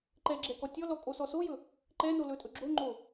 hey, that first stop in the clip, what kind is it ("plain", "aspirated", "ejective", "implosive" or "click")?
click